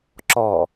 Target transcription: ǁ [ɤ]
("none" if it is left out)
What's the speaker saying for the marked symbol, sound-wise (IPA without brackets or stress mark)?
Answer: ɔ